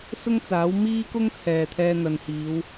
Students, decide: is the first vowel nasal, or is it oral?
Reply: oral